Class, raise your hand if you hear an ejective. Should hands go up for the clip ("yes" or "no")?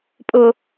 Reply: yes